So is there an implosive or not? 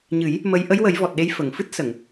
yes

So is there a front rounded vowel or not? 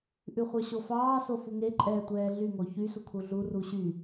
yes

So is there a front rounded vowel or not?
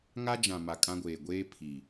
no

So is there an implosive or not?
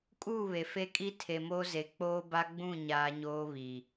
no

